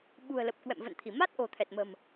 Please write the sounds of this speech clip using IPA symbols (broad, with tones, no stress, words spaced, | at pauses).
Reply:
ɓṳ˨˩ə̯lə˨˩p̚ kwɛ̰˧˨mvə̰˧˨nt̪ʰi˧˩ ma˦˥t̚ ʔo̤˨˩t̪ʰɛ˨˩t̚mə̤˨˩m